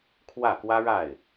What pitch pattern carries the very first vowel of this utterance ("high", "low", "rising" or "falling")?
falling